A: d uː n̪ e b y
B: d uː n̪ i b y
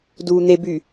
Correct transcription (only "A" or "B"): A